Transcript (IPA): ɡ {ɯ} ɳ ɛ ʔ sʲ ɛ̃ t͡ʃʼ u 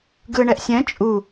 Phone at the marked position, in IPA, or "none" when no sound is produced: ɯ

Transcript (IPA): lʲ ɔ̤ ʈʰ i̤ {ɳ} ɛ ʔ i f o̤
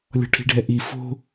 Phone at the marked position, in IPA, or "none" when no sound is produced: ɖʱ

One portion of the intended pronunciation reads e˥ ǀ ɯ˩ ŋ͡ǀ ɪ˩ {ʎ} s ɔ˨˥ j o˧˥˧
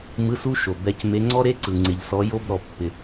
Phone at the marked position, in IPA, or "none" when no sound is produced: ʎ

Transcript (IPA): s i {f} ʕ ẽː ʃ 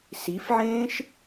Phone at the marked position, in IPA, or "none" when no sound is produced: f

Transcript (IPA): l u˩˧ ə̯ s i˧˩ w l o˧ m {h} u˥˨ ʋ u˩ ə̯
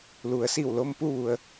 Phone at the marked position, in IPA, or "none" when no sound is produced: p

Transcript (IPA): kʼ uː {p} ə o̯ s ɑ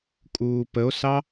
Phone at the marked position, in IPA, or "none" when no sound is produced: p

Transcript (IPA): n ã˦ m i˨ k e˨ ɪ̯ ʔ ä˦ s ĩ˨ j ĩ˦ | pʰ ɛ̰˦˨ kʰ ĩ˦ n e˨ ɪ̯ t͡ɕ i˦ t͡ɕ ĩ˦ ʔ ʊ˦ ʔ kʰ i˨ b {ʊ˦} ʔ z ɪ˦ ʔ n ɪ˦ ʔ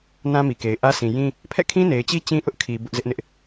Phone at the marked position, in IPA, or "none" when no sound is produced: ʊ˦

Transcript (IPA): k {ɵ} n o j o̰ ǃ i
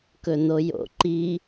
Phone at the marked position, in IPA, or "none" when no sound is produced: ɵ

